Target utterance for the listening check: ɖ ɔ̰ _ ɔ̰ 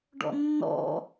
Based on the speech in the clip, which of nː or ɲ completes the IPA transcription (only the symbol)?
nː